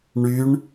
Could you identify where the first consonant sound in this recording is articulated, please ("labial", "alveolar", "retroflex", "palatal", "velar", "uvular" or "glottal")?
retroflex